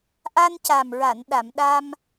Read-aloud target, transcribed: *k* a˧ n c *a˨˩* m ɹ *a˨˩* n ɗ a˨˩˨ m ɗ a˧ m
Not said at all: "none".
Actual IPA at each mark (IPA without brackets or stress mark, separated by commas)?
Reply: ʔ, a˨˩, a˨˩˨